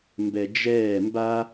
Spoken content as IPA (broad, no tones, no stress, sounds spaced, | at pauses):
m b ɛ d͡ʒ ɛː m b a